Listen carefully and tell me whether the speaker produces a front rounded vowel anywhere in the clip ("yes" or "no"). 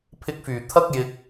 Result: yes